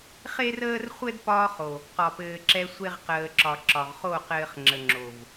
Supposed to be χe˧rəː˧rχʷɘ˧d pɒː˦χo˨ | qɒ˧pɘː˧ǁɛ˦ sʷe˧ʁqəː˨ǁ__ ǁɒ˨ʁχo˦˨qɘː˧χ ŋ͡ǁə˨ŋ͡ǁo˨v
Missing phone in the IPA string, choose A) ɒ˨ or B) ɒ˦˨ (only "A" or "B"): A